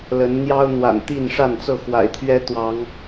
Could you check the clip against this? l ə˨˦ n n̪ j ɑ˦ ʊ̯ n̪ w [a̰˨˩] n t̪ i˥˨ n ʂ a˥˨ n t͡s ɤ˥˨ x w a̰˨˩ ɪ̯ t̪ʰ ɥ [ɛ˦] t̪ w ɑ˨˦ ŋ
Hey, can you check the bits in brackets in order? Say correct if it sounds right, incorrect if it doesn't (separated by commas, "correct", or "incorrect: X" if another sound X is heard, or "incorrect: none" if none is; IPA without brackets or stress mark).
correct, correct